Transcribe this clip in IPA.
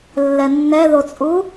lːɛnːɛðot͡sʼu

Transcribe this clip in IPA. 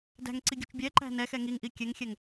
dæ̤ŋǀiɡʲṳt͡ʃ bʲɛǃæ̤ nɛxɛ ŋiŋʔi kʲɛŋxʲɛŋ

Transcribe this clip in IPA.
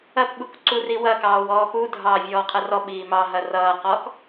ɐpɓuk ǀuriwɐkɑːw ɔːpudʱɑː vʲɔːqʰɐrɔɓiː mɑɦɐ rʌːqɔːk

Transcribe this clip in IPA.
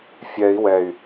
fʲɛi̯ wɛy̯

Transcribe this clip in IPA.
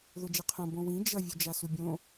ðod͡ʒeqʰõ bõwĩ d͡ʒʌ vʲud͡ʒasubʲõ

